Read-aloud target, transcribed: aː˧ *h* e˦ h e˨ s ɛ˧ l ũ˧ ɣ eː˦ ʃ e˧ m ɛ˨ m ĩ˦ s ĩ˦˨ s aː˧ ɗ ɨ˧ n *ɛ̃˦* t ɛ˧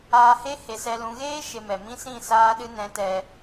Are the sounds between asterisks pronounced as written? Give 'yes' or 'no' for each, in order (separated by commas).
yes, no